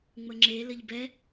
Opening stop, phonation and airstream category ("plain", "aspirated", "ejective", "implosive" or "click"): click